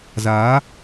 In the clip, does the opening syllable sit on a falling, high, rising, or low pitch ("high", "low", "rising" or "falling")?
rising